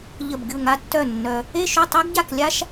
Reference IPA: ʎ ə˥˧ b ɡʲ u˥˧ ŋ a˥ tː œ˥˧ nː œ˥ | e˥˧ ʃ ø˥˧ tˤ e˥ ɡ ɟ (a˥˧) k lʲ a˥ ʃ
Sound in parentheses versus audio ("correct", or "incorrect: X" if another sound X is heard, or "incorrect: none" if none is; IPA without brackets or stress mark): correct